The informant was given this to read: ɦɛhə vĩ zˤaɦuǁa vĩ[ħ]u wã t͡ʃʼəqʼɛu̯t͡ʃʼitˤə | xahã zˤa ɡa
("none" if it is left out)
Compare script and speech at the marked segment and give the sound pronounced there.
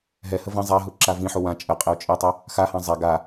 ħ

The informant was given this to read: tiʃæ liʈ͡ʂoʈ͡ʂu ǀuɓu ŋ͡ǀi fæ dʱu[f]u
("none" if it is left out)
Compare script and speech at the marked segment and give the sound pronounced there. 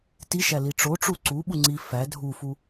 f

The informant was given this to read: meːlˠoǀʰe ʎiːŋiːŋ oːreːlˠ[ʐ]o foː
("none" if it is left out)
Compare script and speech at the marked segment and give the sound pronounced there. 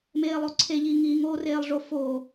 ʐ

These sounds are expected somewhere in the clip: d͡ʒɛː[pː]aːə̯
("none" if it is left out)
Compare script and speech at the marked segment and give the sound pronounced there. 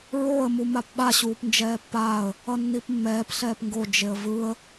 pː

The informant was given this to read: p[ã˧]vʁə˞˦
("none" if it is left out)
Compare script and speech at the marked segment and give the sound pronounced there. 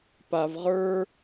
a˧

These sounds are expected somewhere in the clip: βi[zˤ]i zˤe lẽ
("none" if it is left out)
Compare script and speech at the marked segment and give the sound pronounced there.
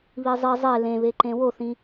zˤ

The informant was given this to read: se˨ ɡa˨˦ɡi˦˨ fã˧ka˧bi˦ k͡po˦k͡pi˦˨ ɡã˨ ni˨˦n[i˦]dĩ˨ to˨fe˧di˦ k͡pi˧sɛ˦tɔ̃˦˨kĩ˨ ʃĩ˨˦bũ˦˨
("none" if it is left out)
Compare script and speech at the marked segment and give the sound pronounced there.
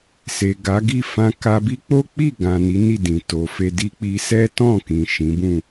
i˦˨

